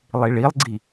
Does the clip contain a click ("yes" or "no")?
yes